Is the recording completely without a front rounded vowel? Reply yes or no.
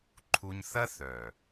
no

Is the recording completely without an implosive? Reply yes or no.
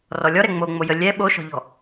no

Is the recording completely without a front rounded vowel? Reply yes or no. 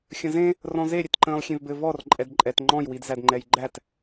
yes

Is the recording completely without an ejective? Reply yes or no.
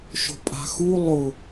no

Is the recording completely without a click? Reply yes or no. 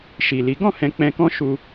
yes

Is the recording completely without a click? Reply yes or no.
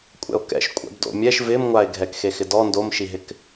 yes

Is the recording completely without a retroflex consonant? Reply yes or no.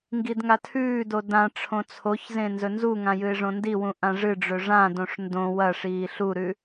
no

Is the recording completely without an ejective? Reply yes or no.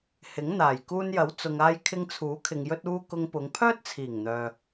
yes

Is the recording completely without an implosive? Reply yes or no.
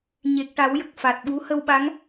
no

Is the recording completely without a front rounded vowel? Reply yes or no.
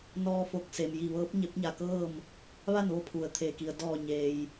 yes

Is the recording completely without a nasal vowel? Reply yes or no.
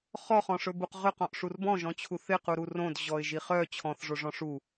no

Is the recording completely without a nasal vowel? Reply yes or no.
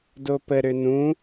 no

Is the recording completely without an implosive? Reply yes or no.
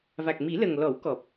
yes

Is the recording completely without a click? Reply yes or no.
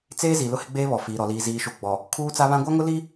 yes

